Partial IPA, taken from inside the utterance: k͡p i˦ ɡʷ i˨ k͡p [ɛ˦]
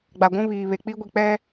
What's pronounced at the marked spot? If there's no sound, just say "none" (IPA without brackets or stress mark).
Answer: ɛ˦